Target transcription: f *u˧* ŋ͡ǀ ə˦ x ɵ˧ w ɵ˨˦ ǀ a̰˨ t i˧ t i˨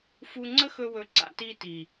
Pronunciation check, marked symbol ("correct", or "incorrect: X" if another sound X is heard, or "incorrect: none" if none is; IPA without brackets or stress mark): correct